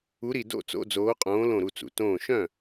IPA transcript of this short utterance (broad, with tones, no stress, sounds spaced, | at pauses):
u˨˦ ɾ i˩ d o̰˥˩ t͡s o̰˧˥˧ d͡z oː˨˦ qʼ õː˨˦ l õ˧˩ ɾ u˧˩ t͡s ṵ˩ t õː˧˩ ʃ œ̃˥˩